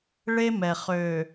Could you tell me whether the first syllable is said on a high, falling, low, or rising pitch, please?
high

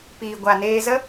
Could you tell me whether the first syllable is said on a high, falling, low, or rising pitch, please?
low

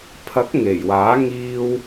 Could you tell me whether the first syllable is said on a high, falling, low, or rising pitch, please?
rising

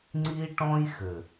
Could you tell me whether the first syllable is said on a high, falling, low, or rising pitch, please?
high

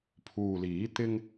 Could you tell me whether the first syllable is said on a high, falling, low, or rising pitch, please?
low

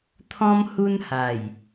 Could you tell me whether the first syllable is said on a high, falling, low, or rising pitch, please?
high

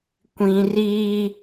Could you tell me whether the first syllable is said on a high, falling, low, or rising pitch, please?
high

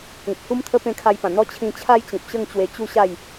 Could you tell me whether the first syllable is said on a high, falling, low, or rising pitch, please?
low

